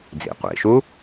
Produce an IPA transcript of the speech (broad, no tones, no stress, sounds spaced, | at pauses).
d͡z ḭ qʷ ḭ ʃ u